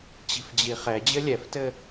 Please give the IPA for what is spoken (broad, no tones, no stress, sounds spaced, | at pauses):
t͡ɕ i̤ f d͡ʑ i χ ɛ d͡ʑ ɘ lʲ ɛ f t ɘ